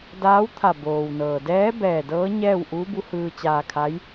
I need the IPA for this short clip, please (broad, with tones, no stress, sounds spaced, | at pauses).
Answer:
d aː˧˥ w t̪ʰ a˧˩ b oː˩ w n ɤː˩ d ɛː˧˥ b ɛː˧˩ d ɤː˧˥ ɲ ɛː˥˨ w ʔ uː˧˥ b u˧˥ h ɯː˧ t͡ɕ aː˧ kʰ a˧˥ j